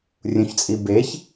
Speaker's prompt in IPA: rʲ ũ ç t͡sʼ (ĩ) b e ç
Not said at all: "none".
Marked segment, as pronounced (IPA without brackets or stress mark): i